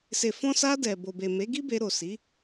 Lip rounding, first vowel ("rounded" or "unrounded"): unrounded